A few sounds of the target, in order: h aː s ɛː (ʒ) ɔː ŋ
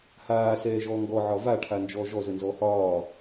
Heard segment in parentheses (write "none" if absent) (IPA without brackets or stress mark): ʒ